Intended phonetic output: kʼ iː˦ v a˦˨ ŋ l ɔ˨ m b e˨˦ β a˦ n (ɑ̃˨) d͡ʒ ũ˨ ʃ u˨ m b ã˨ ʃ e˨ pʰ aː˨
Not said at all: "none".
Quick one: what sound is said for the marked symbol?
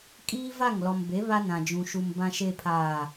ã˨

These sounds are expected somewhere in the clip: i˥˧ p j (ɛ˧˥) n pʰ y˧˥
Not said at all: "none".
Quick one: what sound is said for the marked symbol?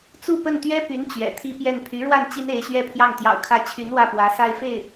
ɛ˥˩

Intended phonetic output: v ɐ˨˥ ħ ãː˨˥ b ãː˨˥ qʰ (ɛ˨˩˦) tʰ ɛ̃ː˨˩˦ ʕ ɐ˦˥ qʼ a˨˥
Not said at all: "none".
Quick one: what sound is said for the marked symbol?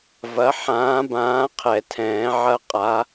ɛ˨˩˦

